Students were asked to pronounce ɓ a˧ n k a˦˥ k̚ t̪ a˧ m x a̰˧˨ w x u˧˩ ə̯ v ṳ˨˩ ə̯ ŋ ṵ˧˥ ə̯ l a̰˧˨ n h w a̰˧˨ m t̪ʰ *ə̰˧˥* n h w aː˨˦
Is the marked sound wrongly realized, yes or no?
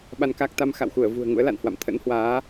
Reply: no